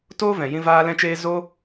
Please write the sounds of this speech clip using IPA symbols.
t oː˦ v ɛ̃˨ j ĩ˧ v aː˧ l ɛ̃˧ t͡ʃ eː˧ z o˦

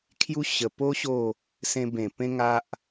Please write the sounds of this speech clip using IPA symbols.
kʰ j u˦ ɕ ə˨˩ p o˦ ɕ o˥˧ | s ẽ˧ b ẽ˨˩ p ẽ˦ ŋ a˦ ʔ

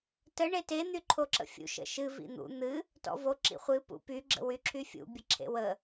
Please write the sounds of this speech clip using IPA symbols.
t ə ɳ e t e n̪ y ǃʰ o ǁ ə̰ fʲ ṵ ʃ ə̰ ʃ ɨ v ḭ n̪ ṵ n̪ ɨ | t ɔ̰ v o ǁ ḭ χʷ ɨ p ṵ p y ɡ͡ǁ ə̰ w y ǁʰ y fʲ ṵ bʲ ə ǁʰ ḛ w ə

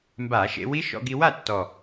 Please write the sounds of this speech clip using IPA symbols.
m b a˧˩˧ ʃ ḛ˧ w i˦˥ ʃ ɔ̰˧ ɡ i˧ w a˥˨ tː ɔ˨˩

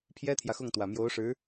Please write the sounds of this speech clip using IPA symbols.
pʰ j ɛ˥ t̪ʰ j ä˨ x ʊ˥˩ ŋ t̪ w ä˨˩ m j o˧˥ ʊ̯ ʂ ɻ̩˧˥

